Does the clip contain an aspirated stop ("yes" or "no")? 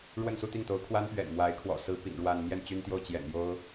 yes